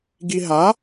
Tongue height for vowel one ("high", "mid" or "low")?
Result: high